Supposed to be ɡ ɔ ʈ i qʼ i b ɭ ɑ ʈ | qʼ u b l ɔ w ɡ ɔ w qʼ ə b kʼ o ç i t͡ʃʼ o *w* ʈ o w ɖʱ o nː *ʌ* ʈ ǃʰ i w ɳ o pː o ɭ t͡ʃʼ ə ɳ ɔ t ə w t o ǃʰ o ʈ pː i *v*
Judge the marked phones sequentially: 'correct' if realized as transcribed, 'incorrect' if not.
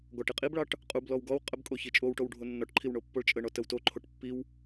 correct, incorrect: ɔ, incorrect: w

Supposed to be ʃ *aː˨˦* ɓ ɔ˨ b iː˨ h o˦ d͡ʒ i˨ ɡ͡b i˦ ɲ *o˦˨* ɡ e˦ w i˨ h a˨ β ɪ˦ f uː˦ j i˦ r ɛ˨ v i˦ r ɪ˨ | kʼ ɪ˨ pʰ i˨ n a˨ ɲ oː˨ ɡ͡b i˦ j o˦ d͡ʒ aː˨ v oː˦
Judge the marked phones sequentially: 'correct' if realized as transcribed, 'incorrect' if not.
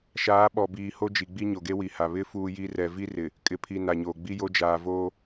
correct, incorrect: o˨

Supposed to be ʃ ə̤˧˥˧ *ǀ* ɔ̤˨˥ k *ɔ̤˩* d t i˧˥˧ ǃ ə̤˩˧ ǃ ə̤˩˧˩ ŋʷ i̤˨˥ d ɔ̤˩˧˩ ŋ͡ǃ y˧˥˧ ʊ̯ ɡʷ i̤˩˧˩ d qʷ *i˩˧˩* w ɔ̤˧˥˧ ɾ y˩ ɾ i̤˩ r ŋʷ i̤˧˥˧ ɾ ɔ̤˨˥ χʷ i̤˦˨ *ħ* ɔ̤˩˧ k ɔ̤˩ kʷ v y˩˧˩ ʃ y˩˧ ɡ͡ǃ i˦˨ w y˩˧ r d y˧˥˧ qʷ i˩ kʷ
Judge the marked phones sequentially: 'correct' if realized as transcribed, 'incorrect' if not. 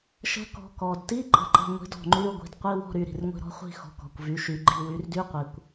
incorrect: k, incorrect: ɔ˩, incorrect: i˧˥˧, incorrect: x

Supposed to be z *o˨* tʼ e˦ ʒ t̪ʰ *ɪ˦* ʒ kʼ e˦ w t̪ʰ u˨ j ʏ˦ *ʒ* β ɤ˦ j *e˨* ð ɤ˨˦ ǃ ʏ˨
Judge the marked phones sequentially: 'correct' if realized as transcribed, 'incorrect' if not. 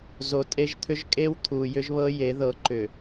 correct, incorrect: ʏ˦, correct, incorrect: e˨˦

